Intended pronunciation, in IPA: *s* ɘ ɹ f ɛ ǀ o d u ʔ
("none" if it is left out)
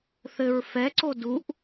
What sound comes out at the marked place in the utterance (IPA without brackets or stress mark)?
θ